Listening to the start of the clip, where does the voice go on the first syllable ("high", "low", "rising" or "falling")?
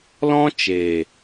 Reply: high